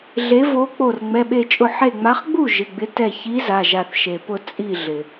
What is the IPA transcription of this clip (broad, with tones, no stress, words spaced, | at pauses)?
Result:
ɮe˨˦ vo˨˦k͡po˧˩r ŋ͡mɛ˩˧˩ɓe˧˩t͡ʃʼʊ˧˩ ħe˧˩ŋ͡ma˨˦χɡ͡bu˥˩ ʒɪ˩˧˩ɡ͡bɪ˨˦tɛ˧˩ çi˨˦ za˩˧˩ʒa˧˩θ ʃe˩pʊ˧˩ t͡sʼi˧˩ɮɪ˩